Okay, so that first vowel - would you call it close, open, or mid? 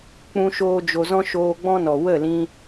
close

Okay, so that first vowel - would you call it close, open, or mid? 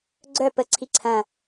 mid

